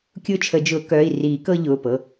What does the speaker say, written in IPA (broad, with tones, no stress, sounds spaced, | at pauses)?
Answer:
kʲ ʊː˦ t͡ʃʰ ə˨˩˦ d͡ʒ ʊː˨˩˦ k œː˩˧˩ i̯ r iː˨˩˦ k ɤ˦ ʎ ʊː˩˧˩ p ɤ˩˧˩